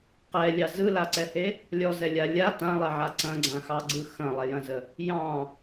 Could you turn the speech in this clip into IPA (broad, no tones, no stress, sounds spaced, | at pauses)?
q ɛ lʲ ɑ z ɯ l a ǀ ɛ h e | lʲ ɔ z ɛ lʲ a lʲ a t ã lˠ ɛ ʕ a ǀ ɐ̃ ɡ͡ǀ ã x ɑ ɡ͡ǀ ɯ x ɐ̃ lˠ ɛ j ɐ̃ z ə | j ɑ̃